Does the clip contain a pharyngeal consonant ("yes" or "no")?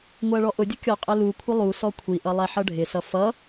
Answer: yes